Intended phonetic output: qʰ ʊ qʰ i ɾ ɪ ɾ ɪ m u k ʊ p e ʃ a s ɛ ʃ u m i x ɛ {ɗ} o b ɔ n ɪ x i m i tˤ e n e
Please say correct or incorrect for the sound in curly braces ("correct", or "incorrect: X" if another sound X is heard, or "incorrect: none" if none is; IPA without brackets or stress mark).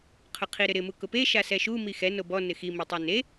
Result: incorrect: n